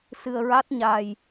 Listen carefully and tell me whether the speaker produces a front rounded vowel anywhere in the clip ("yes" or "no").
no